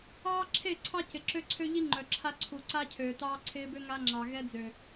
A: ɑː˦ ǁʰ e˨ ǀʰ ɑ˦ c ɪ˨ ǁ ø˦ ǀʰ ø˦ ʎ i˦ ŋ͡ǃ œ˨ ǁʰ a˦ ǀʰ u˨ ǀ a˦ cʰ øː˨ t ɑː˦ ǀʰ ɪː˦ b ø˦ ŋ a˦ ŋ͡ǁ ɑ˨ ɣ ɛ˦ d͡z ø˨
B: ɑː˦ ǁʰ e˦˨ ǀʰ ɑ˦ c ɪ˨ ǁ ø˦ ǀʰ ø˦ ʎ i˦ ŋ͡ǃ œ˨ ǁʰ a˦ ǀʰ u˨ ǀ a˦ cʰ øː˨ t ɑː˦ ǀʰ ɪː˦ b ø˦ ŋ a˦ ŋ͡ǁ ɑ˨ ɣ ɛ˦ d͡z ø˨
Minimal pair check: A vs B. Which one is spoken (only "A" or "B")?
B